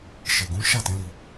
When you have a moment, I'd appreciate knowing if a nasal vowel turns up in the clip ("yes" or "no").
yes